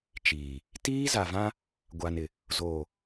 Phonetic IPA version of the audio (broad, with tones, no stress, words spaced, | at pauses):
t͡ʃiː˨ | tiː˦za˨vã˦ | ɡʷa˨nɪ˨ | zoː˨